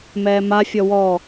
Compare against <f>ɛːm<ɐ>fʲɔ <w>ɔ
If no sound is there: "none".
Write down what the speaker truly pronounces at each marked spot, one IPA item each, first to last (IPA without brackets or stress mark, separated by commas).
m, a, w